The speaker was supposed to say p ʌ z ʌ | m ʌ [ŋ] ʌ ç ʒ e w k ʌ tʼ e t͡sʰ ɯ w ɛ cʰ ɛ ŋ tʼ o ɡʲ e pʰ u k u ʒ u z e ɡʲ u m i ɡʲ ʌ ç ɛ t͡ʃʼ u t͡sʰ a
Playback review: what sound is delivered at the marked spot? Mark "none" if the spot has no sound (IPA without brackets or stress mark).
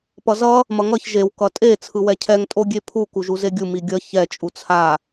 ŋ